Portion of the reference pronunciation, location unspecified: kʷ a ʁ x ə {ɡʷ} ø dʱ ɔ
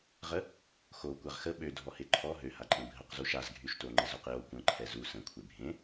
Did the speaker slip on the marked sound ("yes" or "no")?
yes